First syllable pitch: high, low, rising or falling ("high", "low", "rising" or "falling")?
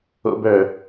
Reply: high